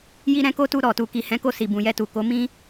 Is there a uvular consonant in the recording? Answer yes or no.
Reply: no